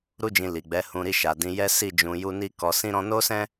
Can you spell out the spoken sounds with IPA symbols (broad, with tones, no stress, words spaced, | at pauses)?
ɾu˦d͡ʒĩ˧li˨ɡ͡bɛ˨˦ hũ˧ɾi˧ʃa˨ dĩ˧jɛ˦ si˦˨d͡ʒũ˧ ju˦ ni˦ kɔ˧ sĩ˦ɾɔ̃˦ no˦sɛ̃˦